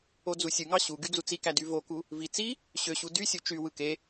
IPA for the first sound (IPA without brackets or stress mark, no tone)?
o